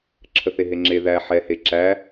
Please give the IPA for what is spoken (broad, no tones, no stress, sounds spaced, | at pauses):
ǁʰ ə θ e ɦ e ŋ͡ǁ e ð æ ħ ɛ h e ǁ æ